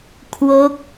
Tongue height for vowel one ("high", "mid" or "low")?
mid